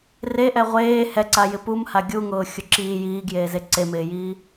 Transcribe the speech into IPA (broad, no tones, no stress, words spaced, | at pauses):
reʔɛ ʁʷeː hɛǀajɪ pumha ɡʲuŋʊːxʲʊ ǁiː jiːɡjeːze ǀemɪːjiː